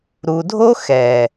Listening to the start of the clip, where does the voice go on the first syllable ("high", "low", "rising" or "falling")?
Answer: low